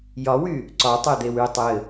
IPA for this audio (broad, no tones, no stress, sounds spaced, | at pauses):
j ɒ w y | ǀ ɒ tˤ e d̪ e w y tˤ ɘ